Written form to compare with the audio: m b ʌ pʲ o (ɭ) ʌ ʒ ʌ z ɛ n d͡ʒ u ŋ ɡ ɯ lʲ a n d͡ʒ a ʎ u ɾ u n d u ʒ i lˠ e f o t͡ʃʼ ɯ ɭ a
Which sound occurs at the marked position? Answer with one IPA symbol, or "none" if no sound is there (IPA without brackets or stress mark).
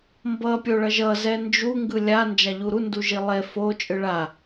ɭ